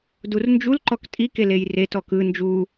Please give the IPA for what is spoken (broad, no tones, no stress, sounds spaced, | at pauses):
d u r n d͡ʒ u l ǃ ɔ k tʼ i k e l e j r e t ɔ k ɯ n d͡ʒ u